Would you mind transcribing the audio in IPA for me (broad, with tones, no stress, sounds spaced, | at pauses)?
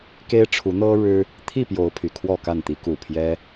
k e˦ ɪ̯ ʈ͡ʂʰ u˨˦ n̪ ɤ˦ ɻ ɻ̩˦ | t̪ʰ i˥˨ p j o˨˦ ʊ̯ pʰ y˨˩ kʰ w ɔ˥˨ k a˥˨ n t̪ i˨˦ k u˨˩ pʰ j ɛ˦